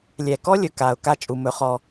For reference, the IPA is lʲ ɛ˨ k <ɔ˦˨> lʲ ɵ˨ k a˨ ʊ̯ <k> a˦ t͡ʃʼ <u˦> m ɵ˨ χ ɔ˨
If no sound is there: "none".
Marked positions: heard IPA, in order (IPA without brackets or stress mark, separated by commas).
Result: ɔ˦, k, u˨